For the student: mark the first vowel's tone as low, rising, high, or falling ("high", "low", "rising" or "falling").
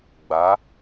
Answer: rising